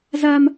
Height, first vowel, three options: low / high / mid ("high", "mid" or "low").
low